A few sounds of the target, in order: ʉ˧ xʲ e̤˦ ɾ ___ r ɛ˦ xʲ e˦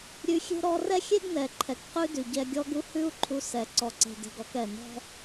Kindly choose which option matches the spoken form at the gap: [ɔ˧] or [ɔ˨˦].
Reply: ɔ˧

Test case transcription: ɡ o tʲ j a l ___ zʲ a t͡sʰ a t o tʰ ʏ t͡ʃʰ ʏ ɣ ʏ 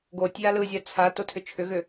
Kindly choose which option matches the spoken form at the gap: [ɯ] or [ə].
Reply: ɯ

